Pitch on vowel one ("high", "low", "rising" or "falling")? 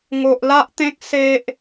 low